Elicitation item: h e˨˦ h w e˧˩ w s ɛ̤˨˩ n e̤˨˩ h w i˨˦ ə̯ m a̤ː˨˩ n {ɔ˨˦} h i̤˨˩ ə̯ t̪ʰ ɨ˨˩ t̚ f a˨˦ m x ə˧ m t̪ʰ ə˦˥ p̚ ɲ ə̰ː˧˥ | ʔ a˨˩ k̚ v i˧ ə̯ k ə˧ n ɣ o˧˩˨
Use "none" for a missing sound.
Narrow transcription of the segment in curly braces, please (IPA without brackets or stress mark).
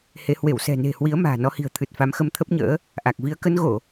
ɔ˨˦